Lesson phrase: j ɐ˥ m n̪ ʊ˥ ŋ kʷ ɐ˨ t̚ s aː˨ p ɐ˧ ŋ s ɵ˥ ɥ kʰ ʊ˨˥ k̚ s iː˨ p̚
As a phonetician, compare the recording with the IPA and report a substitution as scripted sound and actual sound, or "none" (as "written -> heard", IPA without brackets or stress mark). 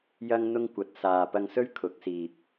m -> ŋ